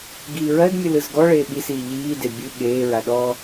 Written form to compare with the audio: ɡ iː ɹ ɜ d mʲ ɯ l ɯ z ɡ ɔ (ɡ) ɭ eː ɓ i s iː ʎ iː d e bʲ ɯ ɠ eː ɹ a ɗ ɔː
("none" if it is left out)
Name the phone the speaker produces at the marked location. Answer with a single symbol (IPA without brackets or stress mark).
none